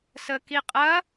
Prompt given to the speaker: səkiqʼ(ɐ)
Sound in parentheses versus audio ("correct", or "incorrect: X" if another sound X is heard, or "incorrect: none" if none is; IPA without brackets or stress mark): correct